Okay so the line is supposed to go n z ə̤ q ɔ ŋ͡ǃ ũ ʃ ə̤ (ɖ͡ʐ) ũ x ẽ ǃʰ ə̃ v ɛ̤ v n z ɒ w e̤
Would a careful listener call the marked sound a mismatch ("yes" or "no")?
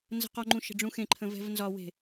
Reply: no